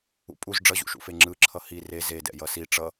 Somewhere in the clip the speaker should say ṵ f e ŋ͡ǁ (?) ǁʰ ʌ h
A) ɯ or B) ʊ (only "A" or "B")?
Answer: A